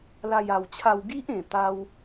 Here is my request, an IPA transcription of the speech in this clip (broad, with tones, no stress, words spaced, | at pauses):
la˥˧ja˧wt͡ɕʰa˥˧w ɡi˦ʔẽ˨˩t̪a˧w